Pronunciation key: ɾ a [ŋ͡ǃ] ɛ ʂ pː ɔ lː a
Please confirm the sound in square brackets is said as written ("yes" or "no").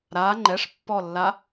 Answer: yes